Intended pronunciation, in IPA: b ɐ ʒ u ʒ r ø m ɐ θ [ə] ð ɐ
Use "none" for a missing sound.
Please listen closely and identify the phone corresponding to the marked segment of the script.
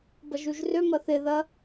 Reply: ɪ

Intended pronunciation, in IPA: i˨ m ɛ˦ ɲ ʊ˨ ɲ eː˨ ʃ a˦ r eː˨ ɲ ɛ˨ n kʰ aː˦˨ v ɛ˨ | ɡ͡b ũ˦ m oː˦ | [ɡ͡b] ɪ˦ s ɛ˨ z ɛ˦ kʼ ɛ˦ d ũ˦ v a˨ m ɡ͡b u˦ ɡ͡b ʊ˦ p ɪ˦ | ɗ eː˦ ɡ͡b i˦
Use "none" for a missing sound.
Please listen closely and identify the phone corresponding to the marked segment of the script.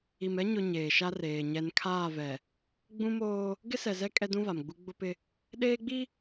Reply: ɡ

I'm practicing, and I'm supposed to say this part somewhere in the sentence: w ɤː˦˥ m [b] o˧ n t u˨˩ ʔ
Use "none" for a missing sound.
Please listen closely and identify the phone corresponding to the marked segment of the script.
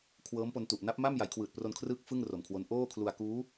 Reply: p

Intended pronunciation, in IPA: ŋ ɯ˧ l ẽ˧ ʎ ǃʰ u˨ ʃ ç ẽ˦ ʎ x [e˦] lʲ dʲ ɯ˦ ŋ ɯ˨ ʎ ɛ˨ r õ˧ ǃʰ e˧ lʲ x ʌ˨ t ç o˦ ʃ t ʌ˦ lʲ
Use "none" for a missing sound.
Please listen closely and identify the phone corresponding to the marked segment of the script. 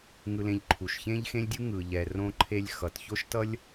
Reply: ẽ˦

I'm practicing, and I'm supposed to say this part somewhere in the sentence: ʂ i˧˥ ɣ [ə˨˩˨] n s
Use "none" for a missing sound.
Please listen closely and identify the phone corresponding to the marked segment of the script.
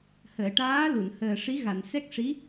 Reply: a˨˩˨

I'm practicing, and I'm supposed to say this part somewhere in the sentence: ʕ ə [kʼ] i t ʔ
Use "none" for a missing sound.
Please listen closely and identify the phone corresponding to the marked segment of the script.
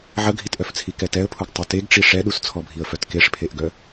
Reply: ɡʱ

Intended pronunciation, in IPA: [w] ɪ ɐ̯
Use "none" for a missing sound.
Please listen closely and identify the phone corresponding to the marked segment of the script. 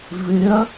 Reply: v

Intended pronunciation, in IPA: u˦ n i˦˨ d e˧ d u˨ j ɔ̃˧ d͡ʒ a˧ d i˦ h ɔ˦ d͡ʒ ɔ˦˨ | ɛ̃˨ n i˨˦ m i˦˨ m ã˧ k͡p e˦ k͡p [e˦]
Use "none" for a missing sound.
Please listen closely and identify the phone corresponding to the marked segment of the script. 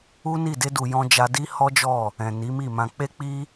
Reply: i˦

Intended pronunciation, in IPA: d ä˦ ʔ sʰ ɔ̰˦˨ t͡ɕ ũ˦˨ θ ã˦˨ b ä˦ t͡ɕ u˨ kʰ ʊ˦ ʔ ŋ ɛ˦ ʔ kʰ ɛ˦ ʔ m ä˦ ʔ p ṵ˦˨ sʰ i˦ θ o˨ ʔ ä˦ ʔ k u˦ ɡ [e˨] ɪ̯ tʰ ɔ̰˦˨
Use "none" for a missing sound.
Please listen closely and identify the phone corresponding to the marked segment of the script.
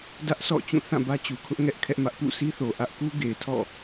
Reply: e˨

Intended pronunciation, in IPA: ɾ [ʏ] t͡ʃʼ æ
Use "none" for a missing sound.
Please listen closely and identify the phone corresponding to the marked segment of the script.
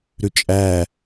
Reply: ʏ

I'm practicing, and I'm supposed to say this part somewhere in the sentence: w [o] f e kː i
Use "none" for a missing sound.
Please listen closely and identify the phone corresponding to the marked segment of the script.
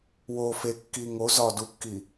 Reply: o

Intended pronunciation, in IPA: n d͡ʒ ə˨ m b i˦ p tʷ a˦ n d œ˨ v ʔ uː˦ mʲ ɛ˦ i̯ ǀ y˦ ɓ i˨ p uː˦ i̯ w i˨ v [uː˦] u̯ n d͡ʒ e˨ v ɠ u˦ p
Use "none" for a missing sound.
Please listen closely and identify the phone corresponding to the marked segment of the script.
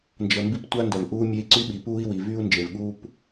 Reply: yː˦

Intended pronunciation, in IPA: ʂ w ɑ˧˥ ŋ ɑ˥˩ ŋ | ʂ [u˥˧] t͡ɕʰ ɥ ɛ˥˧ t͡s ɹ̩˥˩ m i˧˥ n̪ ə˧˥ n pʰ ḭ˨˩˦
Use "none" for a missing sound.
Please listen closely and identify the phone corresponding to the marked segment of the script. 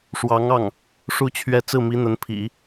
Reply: u˥˧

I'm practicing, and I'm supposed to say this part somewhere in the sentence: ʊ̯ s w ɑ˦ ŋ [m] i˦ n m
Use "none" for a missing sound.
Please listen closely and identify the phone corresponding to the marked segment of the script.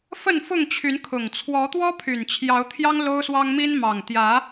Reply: m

